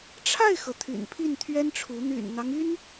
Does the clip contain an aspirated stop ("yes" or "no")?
yes